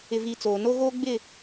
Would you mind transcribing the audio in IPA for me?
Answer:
ɪ˨ v i˨ t͡s oː˨ n o˦ ɣ oː˦ ɡ͡b ɪ˦˨

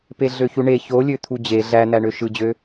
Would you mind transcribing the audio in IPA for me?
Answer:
p e ɮ ø ç u ɳ e ç o lʲ ø t̪ʰ u d͡ʑ e ɮ æ n̪ æ ɳ ø ʃ ɯ d͡ʑ ø

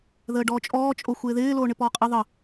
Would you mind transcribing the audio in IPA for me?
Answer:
ð əː ɖ ɔː t͡ʃʼ ɔː t͡ʃʼ o xʷ ɪː ð ɪː l oː ɳ ɪ p ɔː qʼ ɪ ðˤ ə

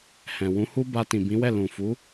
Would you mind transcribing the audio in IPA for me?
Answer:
h ɛ̃˨ w ũ˨˦ h u˦ b a˧ t ĩ˨ b ĩ˨˦ w ɛ˦˨ l ũ˨ f u˨˦

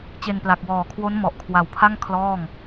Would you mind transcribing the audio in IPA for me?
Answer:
t͡ɕ e˧ n p l a˨˩ k̚ w ɔː˨˩ kʰ w o˦˥ n m ɔ˨˩ ʔ kʰ w a˨˩ w pʰ a˥˩ ŋ kʰ l ɔː˥˩ ŋ

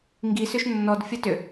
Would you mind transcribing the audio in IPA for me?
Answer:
ŋ ɡ i s ʏ ʃ nː ɔ d fʲ ɐ t ʏ

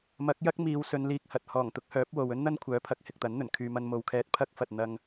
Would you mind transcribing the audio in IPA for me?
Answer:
m ɐ˨˥ k̚ j ɐ˥ k̚ m iː˨ w s ɵ˨˧ n l iː˧ k̚ h ɐ˨ t̚ h ɔː˨˩ ŋ t̪ ʊ˨˥ k̚ h œː˨˥ p̚ w o˨ w ɵ˥ n n̪ ɐ˥ n kʷʰ œː˨˥ pʰ ɐ˨˥ k̚ h ɪ˨ k̚ t̪ ɐ˨˥ n n̪ ɵ˨˩ n kʰ yː˨ m ɐ˧ n m o˨ w kʰ ɛː˧ t̚ pʰ ɐ˥ k̚ f ɐ˨ t̚ n̪ ɐ˧ ŋ

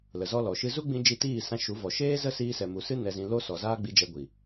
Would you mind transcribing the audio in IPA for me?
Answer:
l ə˨ z ɔ˦ l ɔ˨ ʃ ɨ˦ z u˦ ɡ͡b ĩ˧ d͡ʒ i˧ t iː˦˨ s ã˧ ʃ u˨˦ v ɔ˨ ʃ eː˦ z ə˦ s iː˧ s ɛ˨ m u˨ s ɨ˦ n ɛ˧ z ĩ˧ l o˦ s ɔ˨ z aː˦ ɡ͡b i˧ d͡ʒ ɛ˧ ɡʷ i˨

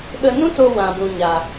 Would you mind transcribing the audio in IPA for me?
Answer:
ɓ ə˧ n ũ˦ t o˧ w ã˨ b ũ˨ ɲ a˨

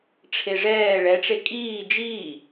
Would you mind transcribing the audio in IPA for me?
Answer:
ʈ͡ʂʰ e ʐ ɛː ɭ ɛ ʈ͡ʂ e kʼ iː d͡ʒ iː

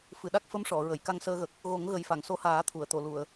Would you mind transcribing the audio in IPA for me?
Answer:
f ɨ˨˩˨ ɗ a˦˥ k̚ f ə˧˥ m ʂ ɔ˨˩˨ ɹ ə˨˩˨ j k a˧ ŋ s əː˧ ɣ ə˨˩ k̚ | ɣ o˨˩˦ ŋ ɣ ə˨˩ j f a˨˩˨ ŋ s o˧˥ h aː˨˩˦ t̪ʰ u˨˩˨ ə̯ t̪ o˨˩˨ l u˨˩˨ ə̯

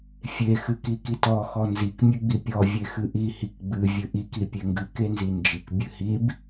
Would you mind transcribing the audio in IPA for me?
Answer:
fʲ e x ɨ k i k i t ɔ x ɔ n z i k mʲ ɨ ɡ͡b i pʲ ɔ vʲ e x ɨ ʔ i h i k ɡ͡b ɨ vʲ ɨ ʔ i k i pʲ e ŋ ɡ ɨ k e n z i n d͡ʒ i k bʲ ɨ h i b

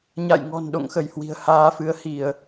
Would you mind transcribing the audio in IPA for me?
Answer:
ɲ a̰˧˨ j ŋ ɔ̤˨˩ n ɗ o̰˧˨ ŋ x ə˧˩ j h w i̤˨˩ ə̯ h aː˧ f ɨ˨˦ ə̯ h i˧˩˨ ə̯

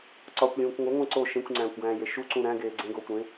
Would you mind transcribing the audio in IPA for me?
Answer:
ǀ ɒ kʷ lʲ ũː kʷ ŋʷ e ŋʷ ẽ ǀ o ʃ ẽ kʷ ŋ͡ǀ æ̃ː kʷ ɡ æ̃ː j e ʃ u ǀ ũ ɾ æ̃ ɡ eː ɡ͡ǀ ẽ ɡ oː kʷ ɾ ẽ

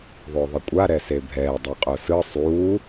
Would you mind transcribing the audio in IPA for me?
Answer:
ðˤ o ðˤ i kʷʼ a ɾ ɛ s e bʱ ɛː dˤ i qʼ o s ɯ sˤ uː

